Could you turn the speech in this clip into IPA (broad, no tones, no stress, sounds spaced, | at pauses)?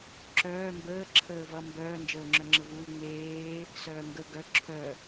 ǁ œː m b əː ǁʰ əː v ʌ m b œː n d͡ʒ əː ŋ͡ǁ œ ŋ͡ǁ ə v uː ŋ͡m eː | s œː ŋ ɡ ə ɡ œ ǁʰ œ